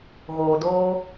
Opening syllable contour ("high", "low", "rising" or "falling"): low